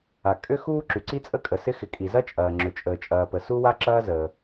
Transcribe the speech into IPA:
a˩ kʼ ʏ˥ x uː˥ ǁ y˩ ǀ i˥ t͡sʼ ə˥ kʼ ə˩ s ɪ˥ x ɪ˩ kʼ i˩ z ɐ˥ t͡ʃʼ ɐː˩ ŋ͡ǁ ʏ˩ t͡ʃʼ əː˩ t͡ʃʼ ɐː˩ p ə˩ s u˥ w a˥ ǁ ɐː˥ z əː˩

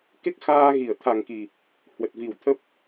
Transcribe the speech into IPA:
k e˦˥ k̚ x aː˧ ɣ i˧˩ ə̯ t̪ʰ a˨˩ ŋ k i˨˩ | h w ə˨˩ t̚ v i˨˩ w t̪ʰ ə˦˥ p̚

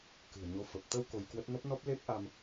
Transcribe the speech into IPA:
k ɨ̤˨˩ ə̯ ɲ o˨˦ f ə˨˩ p̚ t̪ ə˧ w k o˧ j k w ə˦˥ t̚ n ə˦˥ p̚ n ɔ˦˥ p̚ l e˦˥ p̚ ʔ a˧ m

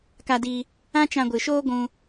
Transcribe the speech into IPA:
k a˧ d i˧ | ã˦ t͡ʃ ã˧ ɡʷ ɨ˨ ʃ oː˦ ɡʷ ũ˧

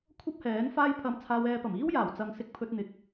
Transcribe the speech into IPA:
kʷʰ ɐ˥ p̚ h ɛː˨˥ n f aː˧ j pʰ ɐ˨˧ m t͡sʰ aː˧ w ɛː˧ p ɐ˨˩ m iː˥ w j aː˨˩ w t͡s ɐ˨ ŋ s ɪ˧ k̚ pʰ ɵ˧ t̚ n̪ ɪ˨ k̚

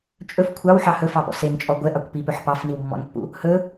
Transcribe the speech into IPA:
t͡ʃʼ ɵ f kʷʰ ɑ w ħ ɑ h ɵ f ɑ p ɔ̰ s e n t͡ʃʼ ɔ ɡʷ ɛ ʔ ɑ kʷ p i p ɵ ħ p ɑ f n i w mː ɔ̰ n pː ṵ | h ɵ

